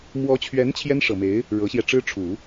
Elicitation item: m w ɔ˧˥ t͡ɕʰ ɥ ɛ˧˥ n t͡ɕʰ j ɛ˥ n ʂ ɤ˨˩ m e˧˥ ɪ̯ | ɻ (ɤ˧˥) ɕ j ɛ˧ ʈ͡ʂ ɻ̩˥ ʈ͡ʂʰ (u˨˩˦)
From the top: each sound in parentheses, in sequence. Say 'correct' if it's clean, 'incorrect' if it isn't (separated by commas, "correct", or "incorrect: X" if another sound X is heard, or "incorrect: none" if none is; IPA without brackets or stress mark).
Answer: correct, correct